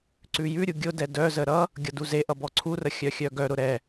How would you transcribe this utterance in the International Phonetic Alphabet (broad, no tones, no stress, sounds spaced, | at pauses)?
ǀ ʉ j ʉ ɾʲ u ɡʲ ʊ d ɛ d œ z ə ɾ ʌ | ɡʲ ʌ d u z e ʔ ʌ b ɔ ǀʰ u r ə xʲ œ xʲ œ ɡ œ ɾ ʊ ɾ ɛ